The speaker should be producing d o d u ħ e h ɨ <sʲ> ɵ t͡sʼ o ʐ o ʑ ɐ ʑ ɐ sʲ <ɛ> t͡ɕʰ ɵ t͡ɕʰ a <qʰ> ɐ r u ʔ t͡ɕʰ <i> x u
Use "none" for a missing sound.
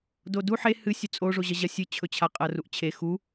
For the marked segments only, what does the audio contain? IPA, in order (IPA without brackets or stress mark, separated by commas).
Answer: sʲ, ɨ, qʼ, e